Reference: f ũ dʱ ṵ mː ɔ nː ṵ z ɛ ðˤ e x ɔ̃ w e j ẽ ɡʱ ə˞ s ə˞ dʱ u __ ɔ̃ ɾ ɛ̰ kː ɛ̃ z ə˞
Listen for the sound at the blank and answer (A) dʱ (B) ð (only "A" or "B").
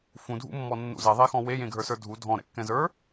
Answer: A